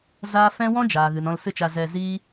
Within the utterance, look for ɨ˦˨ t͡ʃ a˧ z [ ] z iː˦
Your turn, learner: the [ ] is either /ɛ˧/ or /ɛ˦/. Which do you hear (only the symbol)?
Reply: ɛ˧